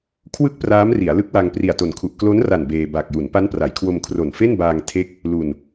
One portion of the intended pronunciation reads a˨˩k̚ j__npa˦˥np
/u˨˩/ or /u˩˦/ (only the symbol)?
u˩˦